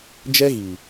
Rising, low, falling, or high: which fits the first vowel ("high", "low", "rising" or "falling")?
high